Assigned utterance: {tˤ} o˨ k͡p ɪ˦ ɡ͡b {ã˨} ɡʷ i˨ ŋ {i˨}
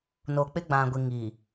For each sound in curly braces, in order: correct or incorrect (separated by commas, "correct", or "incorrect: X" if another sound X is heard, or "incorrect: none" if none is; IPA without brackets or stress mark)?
incorrect: n, correct, correct